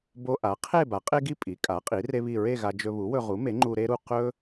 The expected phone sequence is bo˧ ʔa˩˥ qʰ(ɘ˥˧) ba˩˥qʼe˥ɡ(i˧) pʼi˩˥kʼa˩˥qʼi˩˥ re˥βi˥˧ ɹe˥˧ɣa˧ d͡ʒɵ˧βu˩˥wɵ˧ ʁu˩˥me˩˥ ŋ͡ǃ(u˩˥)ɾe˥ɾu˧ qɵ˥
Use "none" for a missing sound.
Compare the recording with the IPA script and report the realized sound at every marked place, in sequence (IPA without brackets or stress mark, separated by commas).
e˥˧, i˥˧, u˧